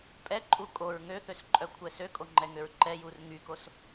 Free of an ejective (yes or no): no